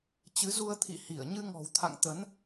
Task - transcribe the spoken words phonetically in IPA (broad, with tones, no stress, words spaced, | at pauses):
t͡ɕɨ˨˦zu˧ə̯ t̪ʰḭ˧˨hi˧˩ə̯ ɲɨ˧ŋɔ̤˨˩wt̪ʰa̰˧˨ŋt̪ə˨˦n